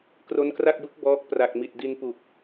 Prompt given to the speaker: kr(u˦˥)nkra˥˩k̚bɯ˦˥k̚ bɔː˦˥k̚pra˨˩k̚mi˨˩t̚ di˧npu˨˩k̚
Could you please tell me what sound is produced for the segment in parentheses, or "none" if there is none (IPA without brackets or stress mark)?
o˦˥